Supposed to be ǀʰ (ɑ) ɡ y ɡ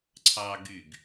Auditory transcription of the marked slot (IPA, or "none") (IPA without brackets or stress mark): ɑ